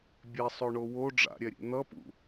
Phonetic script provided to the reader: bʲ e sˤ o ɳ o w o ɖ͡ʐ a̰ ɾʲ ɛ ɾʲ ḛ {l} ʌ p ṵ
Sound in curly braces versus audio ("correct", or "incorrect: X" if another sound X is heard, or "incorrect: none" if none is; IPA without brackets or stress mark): incorrect: n̪